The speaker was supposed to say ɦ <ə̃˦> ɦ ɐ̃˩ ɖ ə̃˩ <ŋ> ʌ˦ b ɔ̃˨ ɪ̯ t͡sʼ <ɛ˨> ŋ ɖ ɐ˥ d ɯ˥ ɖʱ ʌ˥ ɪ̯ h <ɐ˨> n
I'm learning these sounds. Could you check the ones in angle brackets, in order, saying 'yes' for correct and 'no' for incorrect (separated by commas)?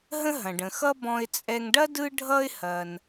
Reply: yes, no, yes, no